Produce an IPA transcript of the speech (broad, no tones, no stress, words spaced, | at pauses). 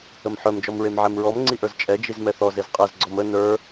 əmħœmd͡ʒɔmɹem ʕɛmɹɔmŋ͡ǀiʔə˞z t͡ʃʼɛd͡ʒiz mɛθɔz ezqʼɛz ɡ͡ǀɔmə nə˞